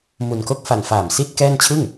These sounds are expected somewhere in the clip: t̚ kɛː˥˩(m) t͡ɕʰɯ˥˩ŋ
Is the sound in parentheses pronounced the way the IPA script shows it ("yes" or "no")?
no